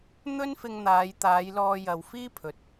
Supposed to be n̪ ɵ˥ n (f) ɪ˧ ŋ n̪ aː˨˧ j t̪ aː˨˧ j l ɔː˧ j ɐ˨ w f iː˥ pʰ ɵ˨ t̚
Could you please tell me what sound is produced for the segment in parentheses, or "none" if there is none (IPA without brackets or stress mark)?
f